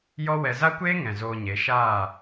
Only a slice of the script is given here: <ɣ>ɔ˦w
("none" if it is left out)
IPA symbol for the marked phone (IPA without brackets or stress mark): j